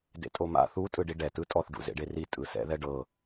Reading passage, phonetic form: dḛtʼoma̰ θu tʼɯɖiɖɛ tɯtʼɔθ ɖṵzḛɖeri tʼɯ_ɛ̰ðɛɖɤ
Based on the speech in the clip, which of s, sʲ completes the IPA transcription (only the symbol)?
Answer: s